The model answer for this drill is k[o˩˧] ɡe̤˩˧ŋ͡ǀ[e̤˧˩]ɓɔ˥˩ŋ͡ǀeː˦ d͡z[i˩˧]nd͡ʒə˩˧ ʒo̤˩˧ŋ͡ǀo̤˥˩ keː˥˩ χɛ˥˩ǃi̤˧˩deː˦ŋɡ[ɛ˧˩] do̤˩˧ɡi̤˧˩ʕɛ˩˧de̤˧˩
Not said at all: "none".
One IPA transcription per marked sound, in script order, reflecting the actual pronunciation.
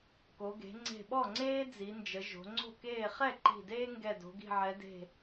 o˩˧, e̤˧˩, i˩˧, ɛ˧˩

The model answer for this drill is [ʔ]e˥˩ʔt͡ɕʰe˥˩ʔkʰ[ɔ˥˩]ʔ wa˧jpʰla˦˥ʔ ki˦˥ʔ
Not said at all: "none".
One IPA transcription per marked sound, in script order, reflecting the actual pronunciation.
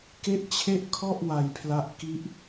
k, ɔ˥˩

